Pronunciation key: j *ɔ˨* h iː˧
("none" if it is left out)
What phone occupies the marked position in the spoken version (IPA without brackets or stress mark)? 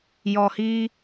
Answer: ɔ˨